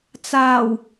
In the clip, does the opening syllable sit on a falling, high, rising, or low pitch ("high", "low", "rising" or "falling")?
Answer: low